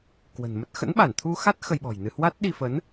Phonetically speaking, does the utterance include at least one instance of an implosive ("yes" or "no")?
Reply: yes